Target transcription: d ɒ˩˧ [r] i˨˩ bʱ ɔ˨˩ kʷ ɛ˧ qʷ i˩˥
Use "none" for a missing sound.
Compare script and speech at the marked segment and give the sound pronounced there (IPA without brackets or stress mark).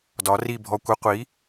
r